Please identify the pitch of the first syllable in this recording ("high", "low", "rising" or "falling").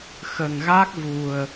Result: low